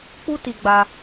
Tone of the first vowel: high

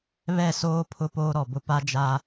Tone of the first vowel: falling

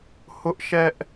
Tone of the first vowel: high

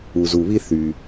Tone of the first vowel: low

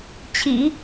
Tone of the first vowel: low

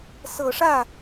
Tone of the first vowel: low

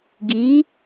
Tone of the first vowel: rising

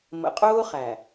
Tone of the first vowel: low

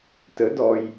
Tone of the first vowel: rising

